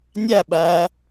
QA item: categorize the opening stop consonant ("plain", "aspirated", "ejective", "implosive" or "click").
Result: implosive